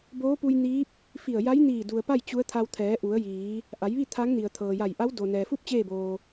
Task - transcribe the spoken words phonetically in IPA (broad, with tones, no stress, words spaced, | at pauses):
boː˧˥pu˧jniː˧˥p̚ | fi˧˩ə̯ja˧˥jniː˧˩ du˩ə̯pa˥˨j t͡ɕu˧˥ə̯t̪ʰa˧w t̪ʰɛː˩˧ʔu˩˧ə̯jiː˩˧ | ʔa˩˧jʋi˥˨ t̪ʰa˧˥ŋ ni˩ə̯t̪ʰɤː˩ja˧˩j ʔa˧˥wdo˩ nɛː˩fu˥˨p̚ t͡ɕeː˥˨boː˩